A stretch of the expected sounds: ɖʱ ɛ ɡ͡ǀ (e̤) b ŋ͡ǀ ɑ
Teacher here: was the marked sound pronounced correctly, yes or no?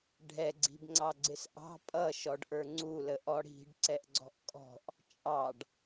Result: no